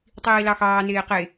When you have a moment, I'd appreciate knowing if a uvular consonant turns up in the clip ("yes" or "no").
yes